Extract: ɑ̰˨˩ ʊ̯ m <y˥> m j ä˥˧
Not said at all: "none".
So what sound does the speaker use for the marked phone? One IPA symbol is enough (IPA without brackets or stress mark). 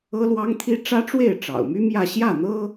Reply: y˥